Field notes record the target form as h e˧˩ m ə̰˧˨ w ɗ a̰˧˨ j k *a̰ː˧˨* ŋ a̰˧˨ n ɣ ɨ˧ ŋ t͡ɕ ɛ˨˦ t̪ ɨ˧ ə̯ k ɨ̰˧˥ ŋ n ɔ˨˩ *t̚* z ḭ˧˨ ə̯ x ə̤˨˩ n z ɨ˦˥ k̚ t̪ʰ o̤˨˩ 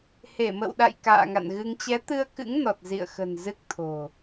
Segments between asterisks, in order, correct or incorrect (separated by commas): correct, correct